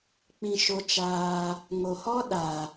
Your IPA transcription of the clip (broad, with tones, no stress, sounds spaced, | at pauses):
k͡p ĩ˧ ʃ o˧ t͡ʃ aː˧ | ŋ o˨ h ɔ˦ ɗ a˨